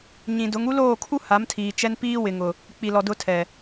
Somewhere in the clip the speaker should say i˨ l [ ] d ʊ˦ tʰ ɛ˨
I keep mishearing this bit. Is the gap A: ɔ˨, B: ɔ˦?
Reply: A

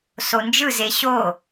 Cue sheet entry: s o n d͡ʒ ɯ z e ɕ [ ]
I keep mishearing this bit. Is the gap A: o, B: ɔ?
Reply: A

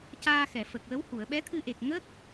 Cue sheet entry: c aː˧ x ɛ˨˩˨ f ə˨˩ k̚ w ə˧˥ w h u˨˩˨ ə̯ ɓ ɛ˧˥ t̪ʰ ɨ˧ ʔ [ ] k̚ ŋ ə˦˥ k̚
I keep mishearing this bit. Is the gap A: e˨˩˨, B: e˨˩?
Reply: B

